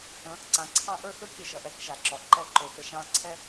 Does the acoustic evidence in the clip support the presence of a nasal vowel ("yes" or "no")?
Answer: yes